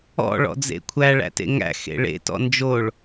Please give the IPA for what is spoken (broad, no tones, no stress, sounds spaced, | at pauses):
ɔ̰ ɭ ɔ̰ d͡z ḛ kʷʰ æ ɭ æ̰ t ḛ ŋ æ̰ x ḛ ɭ ḛ t ɔ̰ n d͡ʒ o ɭ